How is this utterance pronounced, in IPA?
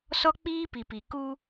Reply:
s ɔ˦ k͡p iː˦ p i˨ p i˨ k u˦

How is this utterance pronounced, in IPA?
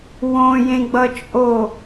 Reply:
w õ j ẽ ɡ͡b ʌ t͡ʃʼ o

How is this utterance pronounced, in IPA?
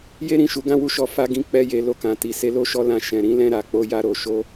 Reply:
j e˦ ɾ ĩ˦˨ ʃ u˨˦ ɡ ã˦˨ w u˧ ʃ ɔ˧ f a˦ ɡ ĩ˦ k͡p ɛ˦ j e˧ l o˧ k ã˨ t i˨ s e˧ l o˦ ʃ ɔ˦ l ã˧ ʃ ɛ̃˨ ɾ ĩ˨˦ l ɛ̃˧ ɾ a˨ k͡p o˧ j a˧ ɾ o˨ ʃ o˧

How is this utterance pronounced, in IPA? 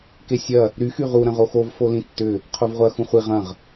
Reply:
k e sʲ ɐ | ɾ y x y ʁ u ɾ ɐ̃ ʁ o x o v f o l ĩ tː ʏ | qʰ o v ʁʷ ɐ x ũ χʷ i ʁ ɐ̃ ʁ

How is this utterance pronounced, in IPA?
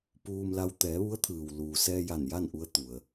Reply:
p uː˧ m l a˧ w t̪ ɛː˩˧ ʋ u˧˥ ə̯ t̪ʰ ɯː˩ w l uː˩ s ɛː˧ j a˧˩ n j a˥˨ n ʔ u˧ ə̯ t̪ u˩ ə̯

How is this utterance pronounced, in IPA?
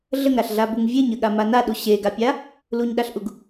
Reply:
ɮ ə ŋ ɾ a ɬ ɮ a b u ŋ vʲ e ɲ ə ɠ a m a n a ɗ u ɕ e ɡ a pʲ a | l u ɲ ɗ a ɬ ʔ u ɡ

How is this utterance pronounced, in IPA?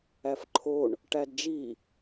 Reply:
æ f ǃʰ o ɳ | ʈ æ d d͡ʒ i

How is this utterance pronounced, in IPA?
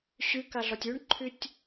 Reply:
ɕ y k a ɮ ɒ tʲ y ɳ ǃʰ y tʲ

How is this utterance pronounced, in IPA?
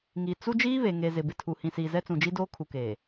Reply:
ŋ i˨ t͡s u˦ d͡ʒ iː˦ β e˨ ŋ e˨ z ɪ˨ b ɪ˨ tʰ u˨ h ĩ˨ s iː˨ z ɛ˦ t͡s ũ˨ d͡ʒ i˦ d oː˦ kʰ u˨ k eː˨

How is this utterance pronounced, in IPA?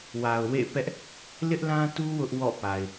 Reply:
w a˨ ʊ̯ w ḛ˦˨ p ɛ˦ ʔ | l ɪ˦ ʔ l ã˦ t u˦ w ʊ˦ ʔ w ɔ̰˦˨ p a˨ ɪ̯

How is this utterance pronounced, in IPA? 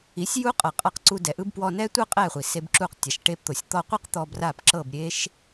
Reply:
i˨˦ sʲ j u˦ qʼ ɤ˨ qʼ a˧ q ǀ u˧ d ɛ˨ ʔ ɯ˦ b p w ɔ˧ n ɛ˦ tʷ ɤ˦ qʼ ɛ˦˨ χʷ i˨ s e˧ b ǁ u˧ q tʲ a˨ ʃ ʈ e˧ p t̪ o˨ sʲ t̪ ɔ˧ qʷ ɯ˦ q t̪ ɔ˧ b r a˦˨ p ǁ ɤ˦˨ b ɾʲ e˦ ʃ

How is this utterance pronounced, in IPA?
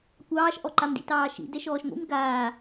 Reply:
kʷ ɑː ʃ ʔ ɔ ǃ a m d ḭ t ɑː ʃ ḭ d ɛ ʃ ɔː ʃ ŋʷ ḭ m ɡ aː

